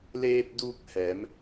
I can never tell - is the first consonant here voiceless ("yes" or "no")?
no